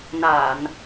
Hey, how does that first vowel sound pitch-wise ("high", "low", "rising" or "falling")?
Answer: low